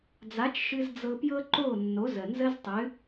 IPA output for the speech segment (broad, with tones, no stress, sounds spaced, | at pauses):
d͡z a˨˦ t͡ʃ ʃ ɨ˧ z d͡z ɤ˧ p j ɤ˦ ǃ o˦˨ nː o˨˦ z ə˨ n z ə˦ z tˤ ɨ˨˦